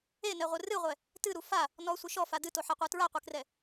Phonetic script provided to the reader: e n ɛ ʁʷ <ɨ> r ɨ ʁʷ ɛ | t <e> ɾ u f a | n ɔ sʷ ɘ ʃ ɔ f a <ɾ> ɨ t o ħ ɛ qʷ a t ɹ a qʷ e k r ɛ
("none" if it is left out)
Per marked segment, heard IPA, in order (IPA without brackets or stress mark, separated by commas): ɨ, ɨ, d